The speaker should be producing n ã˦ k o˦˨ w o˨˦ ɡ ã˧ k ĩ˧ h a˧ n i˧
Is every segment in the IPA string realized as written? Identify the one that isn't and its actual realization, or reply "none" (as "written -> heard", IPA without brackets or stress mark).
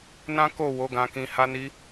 none